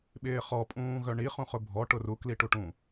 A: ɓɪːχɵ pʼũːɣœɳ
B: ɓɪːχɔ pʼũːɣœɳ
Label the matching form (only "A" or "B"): B